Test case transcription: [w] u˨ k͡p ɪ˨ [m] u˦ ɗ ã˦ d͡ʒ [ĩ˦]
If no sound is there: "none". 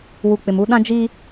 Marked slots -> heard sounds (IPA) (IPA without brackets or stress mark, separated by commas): w, m, i˦